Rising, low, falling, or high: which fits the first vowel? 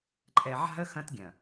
low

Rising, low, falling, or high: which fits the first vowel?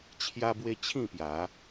high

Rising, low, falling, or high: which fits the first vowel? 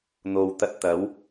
low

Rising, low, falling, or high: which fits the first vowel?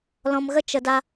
low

